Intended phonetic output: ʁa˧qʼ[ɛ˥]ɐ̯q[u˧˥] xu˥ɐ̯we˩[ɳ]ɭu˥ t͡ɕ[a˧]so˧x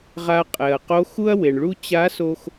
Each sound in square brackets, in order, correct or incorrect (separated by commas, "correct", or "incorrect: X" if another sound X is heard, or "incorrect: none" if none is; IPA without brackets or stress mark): incorrect: ɛ˩, incorrect: o˧˥, correct, incorrect: a˧˥